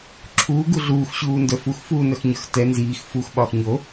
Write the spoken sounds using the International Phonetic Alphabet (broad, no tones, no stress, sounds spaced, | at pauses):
ǁʰ uː ɡ u ɮ uː x ɕ uː n d œ f u x f uː n œ x ɲ ə˞ x t ɛ n z iː x f u x ɓ ɒː x ɲ o